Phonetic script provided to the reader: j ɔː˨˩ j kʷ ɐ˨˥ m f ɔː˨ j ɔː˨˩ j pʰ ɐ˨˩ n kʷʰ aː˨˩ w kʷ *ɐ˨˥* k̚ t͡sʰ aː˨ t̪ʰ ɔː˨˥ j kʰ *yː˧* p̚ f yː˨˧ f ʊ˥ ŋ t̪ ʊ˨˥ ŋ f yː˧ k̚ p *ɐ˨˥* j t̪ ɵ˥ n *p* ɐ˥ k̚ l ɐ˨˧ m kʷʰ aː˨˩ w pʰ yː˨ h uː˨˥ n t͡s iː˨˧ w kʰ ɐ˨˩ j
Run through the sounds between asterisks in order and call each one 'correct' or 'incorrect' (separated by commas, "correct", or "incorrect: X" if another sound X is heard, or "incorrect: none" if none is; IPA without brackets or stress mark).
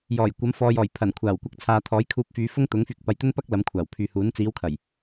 incorrect: ɐ˧, incorrect: uː˧, incorrect: ɐ˨˧, correct